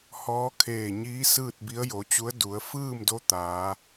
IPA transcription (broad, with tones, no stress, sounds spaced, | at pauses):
h ɔː˧˥ kʰ eː˧˩ ɲ iː˧˥ s ɯː˥˨ t̚ b i˧˥ ə̯ j o˩˧ t͡ɕ u˧˥ ə̯ d u˩˧ ə̯ f ɯː˥˨ m d o˧˥ t̪ aː˩˧